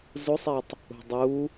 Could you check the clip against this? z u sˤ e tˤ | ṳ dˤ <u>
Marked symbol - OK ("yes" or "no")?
yes